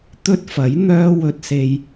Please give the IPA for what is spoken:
t̪ ɵ˥ t̚ f ɐ˨˥ j n̪ œː˧ w ɵ˧ t̚ s e˧ j

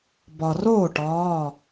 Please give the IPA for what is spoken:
b ɒ˩ r oː˥˩ ʈ ɒː˩˧˩

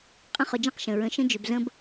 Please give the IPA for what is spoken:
qʼ ə̃˦ χ ʊ˧ d͡ʒ ɛ̃˦ q ʃ ə̃˨ ɹ ə̃˧ ʃ ə̃˦ d͡ʒ ʏ˧ b z ə̃˦ b

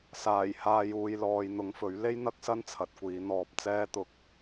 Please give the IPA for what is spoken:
s aː˨˩ j h aː˨ j uː˨ j l ɔː˨ j n̪ ʊ˨˧ ŋ f ɵ˨˥ ɥ l e˥ j n̪ ɐ˥ k̚ s ɐ˥ n t͡sʰ ɐ˨˥ t̚ kʷ iː˨˥ n̪ ɔː˧ p̚ t͡s ɛː˥ t̪ ʊ˧ k̚

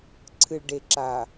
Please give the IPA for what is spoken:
ǀʰ ɨ˨ ɭ ɖ e˨ ǁ a˨

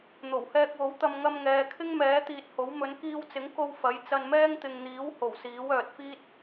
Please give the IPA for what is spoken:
n̪ o˨˩ w h ɛː˧ k̚ w o˨˥ w t̪ ɐ˧ m ŋ ɐ˧ m ŋ ɛː˨ kʰ ɪ˥ ŋ m ɛː˨˥ t̪ iː˧ t̚ h o˨˥ w m ɵ˨˧ n k iː˧ w t͡s ɪ˨˥ ŋ k o˧ w f ɐ˨˥ j t͡s ɐ˧ n m ɛː˥ ŋ t̪ ɪ˨ ŋ n̪ iː˨˥ w h o˨˩ w s iː˨˥ w œː˨ t̚ f iː˥ t̚

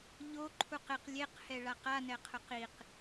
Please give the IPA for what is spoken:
ʎ o ǃʰ u q ɪ q lʲ e q h ɛ ɭ a q a n ɛ qʰ ʊ q i q

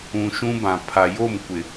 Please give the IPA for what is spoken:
ũ˨ ʃ ũ˦ b ã˨ pʰ a˨ j o˦˨ m kʷ ɪ˨

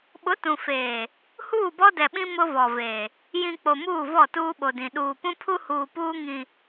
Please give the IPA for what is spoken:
ɓ ʊ˨˦ t ũ˨ f eː˨ | h uː˦˨ b ɔ˦ d ɛ˨ ɓ ĩ˦ m ʊ˦ v ɔ˨ v e˨ | j ĩ˨ k͡p o˨ m uː˦˨ v ɔ˦˨ t uː˦ ɓ o˨ d ĩ˨ ɗ uː˨ p ũ˦ pʰ u˦ h uː˨ p uː˦ ŋ ĩ˨

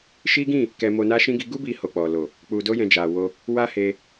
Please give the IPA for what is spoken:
ʃ i˦ ɡ ĩ˦˨ | k ɛ˧ m o˧ n a˦ ʃ ĩ˦ ɡ i˧ ɡ u˦ b i˧ h o˧ k͡p ɔ˨ l o˨ | k͡p u˧ d o˦ j ɛ̃˧ d͡ʒ a˨ w o˧ | w a˦ h e˧

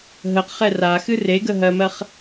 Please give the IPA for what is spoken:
ɦ ə q χ ɛ r a x ɨ r e ɡ ə ɦ ɜ m ɜ χ

